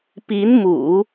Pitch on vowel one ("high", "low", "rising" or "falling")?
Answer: rising